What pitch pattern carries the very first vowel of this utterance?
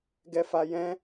high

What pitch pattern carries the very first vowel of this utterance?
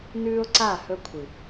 high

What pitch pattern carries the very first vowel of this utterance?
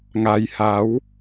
low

